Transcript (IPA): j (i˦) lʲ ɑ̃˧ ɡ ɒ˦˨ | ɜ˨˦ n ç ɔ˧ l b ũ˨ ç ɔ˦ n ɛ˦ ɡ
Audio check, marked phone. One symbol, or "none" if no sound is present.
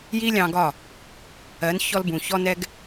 i˦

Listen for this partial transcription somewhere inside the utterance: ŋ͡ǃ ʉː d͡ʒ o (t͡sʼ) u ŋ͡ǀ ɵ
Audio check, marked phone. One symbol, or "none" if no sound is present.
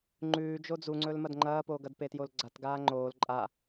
d͡z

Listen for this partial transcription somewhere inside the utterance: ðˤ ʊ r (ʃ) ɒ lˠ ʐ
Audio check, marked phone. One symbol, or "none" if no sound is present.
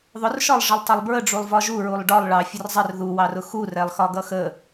ʃ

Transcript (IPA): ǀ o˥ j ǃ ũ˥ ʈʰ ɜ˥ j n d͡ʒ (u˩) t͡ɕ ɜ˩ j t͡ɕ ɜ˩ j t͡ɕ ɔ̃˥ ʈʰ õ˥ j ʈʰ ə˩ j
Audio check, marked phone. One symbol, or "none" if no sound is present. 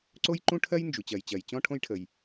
u˩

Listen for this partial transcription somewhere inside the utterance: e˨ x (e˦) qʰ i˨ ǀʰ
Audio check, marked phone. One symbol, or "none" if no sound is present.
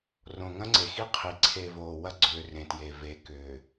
i˦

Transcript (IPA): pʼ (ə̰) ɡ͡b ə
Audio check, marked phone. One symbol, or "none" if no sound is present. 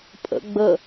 ə̰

